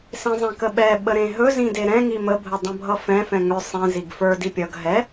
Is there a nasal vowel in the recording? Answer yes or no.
yes